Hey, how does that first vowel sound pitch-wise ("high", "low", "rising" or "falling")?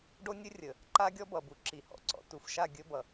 high